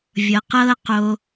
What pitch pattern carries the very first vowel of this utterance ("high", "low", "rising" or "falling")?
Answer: low